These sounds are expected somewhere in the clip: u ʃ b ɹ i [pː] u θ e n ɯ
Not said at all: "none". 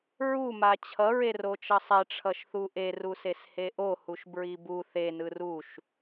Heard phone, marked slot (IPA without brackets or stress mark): b